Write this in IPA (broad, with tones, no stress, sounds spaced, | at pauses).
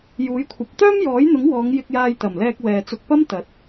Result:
j uː˨˥ j kʷʰ ɐ˨˥ p̚ t̪ œː˥ m j ɔː˨˥ j n̪ ʊ˨˥ ŋ w ɔː˨˧ ŋ j ɪ˧ k̚ j aː˧ j t̪ ɐ˨˩ m l ɛː˧ k̚ w ɛː˧ t͡s ʊ˧ k̚ p ɐ˥ m t̪ ɐ˨˥ t̚